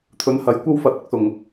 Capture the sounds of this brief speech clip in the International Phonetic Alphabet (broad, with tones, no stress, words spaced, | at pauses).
t̪ʰɵ˨˥nhɐ˨˧jkʷɐ˥wfɐ˨˥t̚ ɐ˥k̚sʊ˨˩ŋ